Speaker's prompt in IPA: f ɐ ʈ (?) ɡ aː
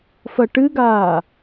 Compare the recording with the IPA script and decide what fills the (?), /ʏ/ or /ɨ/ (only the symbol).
ɨ